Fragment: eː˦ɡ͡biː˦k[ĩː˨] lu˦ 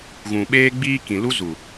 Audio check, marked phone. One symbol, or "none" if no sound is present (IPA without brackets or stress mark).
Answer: ĩ˨